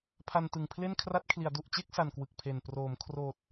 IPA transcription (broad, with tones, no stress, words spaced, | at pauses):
pʰa˧ntɯ˨˩ŋpʰle˥˩n kʰra˦˥t̚kʰli˩˦a̯ du˨˩ʔt͡ɕe˥˩k̚sa˨˩n kwɯ˨˩k̚pʰe˨˩n proː˩˦mkʰroː˨˩t̚